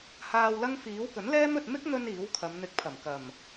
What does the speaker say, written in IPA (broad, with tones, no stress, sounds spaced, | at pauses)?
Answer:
h aː˧ w l ɐ˥ ŋ f iː˨˥ w k ɵ˨˥ n l ɛː˥ m ɵ˧ t̚ m ɪ˥ k̚ n̪ ɵ˧ n iː˨˥ w kʰ ɐ˨˧ m n̪ ɪ˨˥ k̚ pʰ ɐ˨˩ m k ɐ˨˩ m